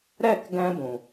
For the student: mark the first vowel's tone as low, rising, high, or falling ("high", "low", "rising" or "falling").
falling